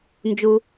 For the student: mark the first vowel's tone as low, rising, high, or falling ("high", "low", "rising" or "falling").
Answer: low